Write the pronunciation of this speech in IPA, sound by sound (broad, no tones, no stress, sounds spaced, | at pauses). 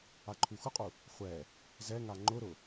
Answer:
a ǃʰ u x ʊ qʼ u | χʷ ɛ | z ɛ ŋ a ŋ͡ǃ ʊ ɾ ʊ